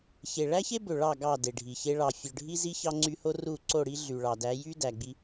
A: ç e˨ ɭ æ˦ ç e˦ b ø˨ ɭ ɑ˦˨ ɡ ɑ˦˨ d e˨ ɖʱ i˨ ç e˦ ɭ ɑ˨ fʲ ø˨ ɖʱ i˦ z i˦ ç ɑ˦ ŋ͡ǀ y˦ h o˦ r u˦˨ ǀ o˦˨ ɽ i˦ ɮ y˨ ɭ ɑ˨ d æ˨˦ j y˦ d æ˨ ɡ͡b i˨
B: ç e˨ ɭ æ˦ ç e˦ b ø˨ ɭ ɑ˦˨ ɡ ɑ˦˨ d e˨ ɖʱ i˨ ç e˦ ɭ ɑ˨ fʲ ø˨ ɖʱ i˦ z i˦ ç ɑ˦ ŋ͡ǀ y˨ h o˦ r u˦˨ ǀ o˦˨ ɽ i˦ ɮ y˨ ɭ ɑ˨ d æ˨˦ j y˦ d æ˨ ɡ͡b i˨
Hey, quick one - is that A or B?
A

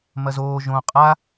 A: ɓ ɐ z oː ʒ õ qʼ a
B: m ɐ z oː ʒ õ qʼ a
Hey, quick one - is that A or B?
B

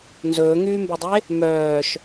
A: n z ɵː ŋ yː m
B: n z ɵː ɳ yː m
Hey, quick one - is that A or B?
A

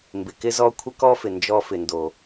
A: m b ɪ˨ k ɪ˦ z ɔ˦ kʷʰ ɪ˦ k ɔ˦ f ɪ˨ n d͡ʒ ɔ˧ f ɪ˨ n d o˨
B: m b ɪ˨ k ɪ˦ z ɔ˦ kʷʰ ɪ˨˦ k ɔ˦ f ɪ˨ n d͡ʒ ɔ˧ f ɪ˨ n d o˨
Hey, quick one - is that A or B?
A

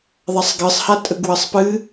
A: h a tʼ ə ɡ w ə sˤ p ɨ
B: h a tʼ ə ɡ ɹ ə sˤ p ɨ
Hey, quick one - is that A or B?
A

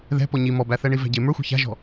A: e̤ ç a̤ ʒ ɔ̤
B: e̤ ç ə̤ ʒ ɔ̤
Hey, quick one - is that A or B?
A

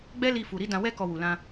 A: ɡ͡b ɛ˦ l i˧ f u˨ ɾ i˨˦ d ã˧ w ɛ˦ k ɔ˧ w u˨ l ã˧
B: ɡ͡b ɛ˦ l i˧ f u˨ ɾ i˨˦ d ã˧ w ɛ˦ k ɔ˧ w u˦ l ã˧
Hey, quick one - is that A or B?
A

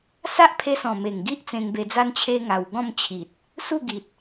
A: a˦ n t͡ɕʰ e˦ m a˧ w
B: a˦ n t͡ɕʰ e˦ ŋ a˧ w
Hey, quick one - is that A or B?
B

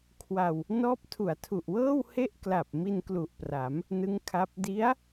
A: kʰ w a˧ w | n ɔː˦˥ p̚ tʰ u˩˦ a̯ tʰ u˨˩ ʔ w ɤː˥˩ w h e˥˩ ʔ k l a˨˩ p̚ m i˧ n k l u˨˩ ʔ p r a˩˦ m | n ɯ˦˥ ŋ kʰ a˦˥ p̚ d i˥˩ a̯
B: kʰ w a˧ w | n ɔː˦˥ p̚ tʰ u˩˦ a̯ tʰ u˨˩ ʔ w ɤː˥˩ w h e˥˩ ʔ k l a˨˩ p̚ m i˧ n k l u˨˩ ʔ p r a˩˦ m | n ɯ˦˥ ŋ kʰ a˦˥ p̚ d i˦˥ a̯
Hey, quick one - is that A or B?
B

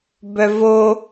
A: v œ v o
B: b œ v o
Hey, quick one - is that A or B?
B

